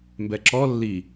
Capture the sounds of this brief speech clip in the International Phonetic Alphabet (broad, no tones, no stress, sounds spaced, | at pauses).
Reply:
m b ɛ ǁ ɔ lː i